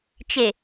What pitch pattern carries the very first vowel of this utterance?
low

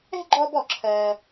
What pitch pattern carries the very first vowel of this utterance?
high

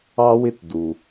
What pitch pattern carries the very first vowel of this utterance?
high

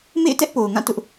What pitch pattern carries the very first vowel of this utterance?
falling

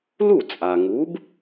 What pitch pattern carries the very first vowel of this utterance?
falling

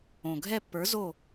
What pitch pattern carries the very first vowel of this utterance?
low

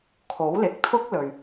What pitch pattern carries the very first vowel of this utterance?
rising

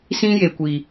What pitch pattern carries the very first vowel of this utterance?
high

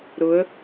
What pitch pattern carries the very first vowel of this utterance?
rising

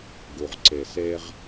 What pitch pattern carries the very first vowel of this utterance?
low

